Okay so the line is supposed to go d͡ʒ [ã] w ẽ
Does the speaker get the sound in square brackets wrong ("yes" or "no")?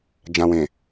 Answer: no